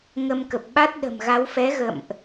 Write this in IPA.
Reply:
ŋə˧m kə˨˩p̚ɓa˦˥t̚ ɗə̤˨˩mɣa˨˦w fɛ˨˦ɣə̰˧˨mʔ

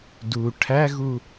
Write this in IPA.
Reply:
du ʈʰæɣu

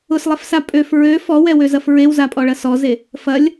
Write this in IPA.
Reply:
ʊslˠɛfsa pʼøf ɹø fɔwɛwøzɐf ɹewzapʼɔɭɐ sɔze | fɐlʲ

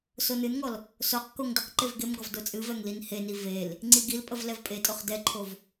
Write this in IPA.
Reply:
sonɨnŋɔl | soq koŋdəqǃev ɡemɡɔv dot͡sʼɨvɛŋ linheni vel | ŋ͡ǀiɡilpʼəv lɛvpʼetʼoχ dɛǃʰov

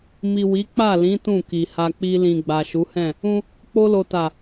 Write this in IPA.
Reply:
mi˨ wi˨˦k͡pa˦˨lĩ˨˦ tũ˦˨ki˨ha˧ k͡pi˧lĩ˨ ɡ͡ba˨ʃu˨˦hɛ̃˦˨ | ũ˦ | k͡po˧lo˨ta˨

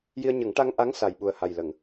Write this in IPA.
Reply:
ji˧ə̯ɲə˨˩˦ŋ ʈa˧ŋʔa˧˥ŋ sa˨˩jɓu˨˩ə̯ha˨˩j lə˨˩˨ŋ

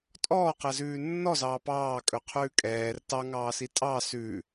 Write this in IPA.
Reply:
tʼɔːqɛzʉː nːɔzɑː pɑːkʼɵqʰʉː kʼɛːr tɑŋɑːsi tʼɑ sʉ

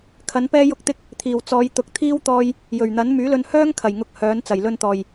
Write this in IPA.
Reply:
kʰɐ˨˥npɛː˥ jʊ˥k̚t̪ɪ˥k̚ | t̪ʰiː˨˩wt͡sɔː˨˧jt̪ʊ˨˥k̚ t̪ʰiː˥wt̪ɔː˧j | jɵ˨˩ɥn̪ɐ˨˥n myː˨˥lɵ˧n hœː˥ŋ kʰɐ˨˩jŋʊ˧k̚ hœː˨˥n t͡sɐ˨˩jlɵ˧nt̪ɔː˨˩j

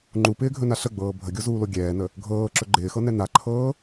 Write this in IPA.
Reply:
ŋ͡ǃupɪːɡʱɵna ɬəɡ͡bɤː bʱəɡʲozuːlo ɡʲɛːnə | ɡʱɤːǁɵ ɡ͡ǃɪːxɤnɛ naǃʰɤː

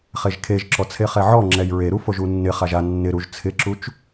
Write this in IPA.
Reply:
χeʒkʰeʒǁɔ t͡sʰeχɛʕɔŋ͡ǁɛj ɹeɾu foʒunːɪχaʒ a nːɪɾuʒ t͡sʰɪǁut͡ʃ

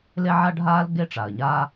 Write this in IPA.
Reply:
le˥ʕa˥ɖʱaː˥l ɡe˥ʈ͡ʂa˩ə̯ɲaː˥

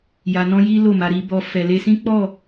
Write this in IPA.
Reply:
ja˧nɔ̃˦ji˦ lo˦˨ma˧ɾi˧bɔ˧ fɛ˨le˧sĩ˦ k͡pɔ˦˨

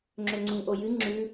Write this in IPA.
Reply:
ŋ͡ǁɵŋ͡ǀĩʔo jɨ ŋ͡ǁʉ

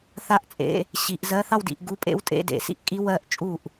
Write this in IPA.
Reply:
θa˥˩ʔt͡sʼḛ˧˥˧ | ɕi˨˩˦ʔzɜ˧˥˧ θɑ˥˧wdḭ˨˩˦ʔ ɡu˧˥˧pʼḛ˦˥wtʼḛ˧˥˧dḛ˨˩˦ sḭ˥˩ʔkʼi˦˥ wɜ˥˩ʔt͡ʃʼu˥˩ʔ

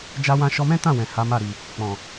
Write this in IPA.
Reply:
d͡ʒa˦wã˦ ʃɔ˧mɛ̃˦tã˦˨ wɛ̃˨ha˨˦ma˦˨ ɾi˨ | k͡pɔ̃˨

